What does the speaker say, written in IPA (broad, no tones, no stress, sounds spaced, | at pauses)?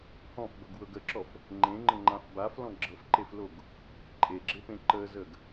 h ɔ̃ f b ɤ ɡ w ɤ ɡ ə ǁ ɔ f | ŋ͡ǃ ẽ ŋ͡ǃ ə ŋ͡ǃ ã f b a f l ɔ̃ ɡ͡ǁ ɤ f ǃ e f l o ɡ | ǃʼ e ɡ͡ǁ e p ẽ ǃ ə z ə ɡ